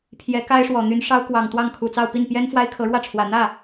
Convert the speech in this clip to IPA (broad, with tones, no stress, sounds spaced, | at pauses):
pʰ j ɛ˧˥ k a˥ ɪ̯ ʂ w ɔ˨˩ n̪ y˧˥ n ʂ ɑ˥ ʊ̯ k w ɑ˨˩ ŋ t̪ w ɑ˥˩ ŋ kʰ u˨˩ t͡s ɑ˥˧ ʊ̯ p i˥˩ n p j ɛ˥ n f w a˥ ɪ̯ kʰ ɤ˧˥ ɻ w ä˥˩ ʈ͡ʂʰ w ä˨˩ n̪ ä˥˩